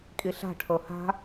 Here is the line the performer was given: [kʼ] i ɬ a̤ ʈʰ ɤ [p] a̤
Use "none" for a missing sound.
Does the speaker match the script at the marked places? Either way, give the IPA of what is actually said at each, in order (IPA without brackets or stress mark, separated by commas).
kʼ, h